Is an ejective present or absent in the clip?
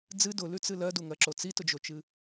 absent